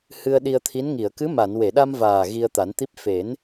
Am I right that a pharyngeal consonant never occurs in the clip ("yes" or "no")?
yes